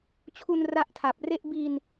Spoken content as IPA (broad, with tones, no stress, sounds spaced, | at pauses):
t͡ɕʰ u˧ n r a˥˩ ʔ tʰ a˨˩ p̚ r e˥˩ ʔ b i˧ n